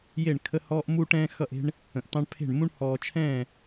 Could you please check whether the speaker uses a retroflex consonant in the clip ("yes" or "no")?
yes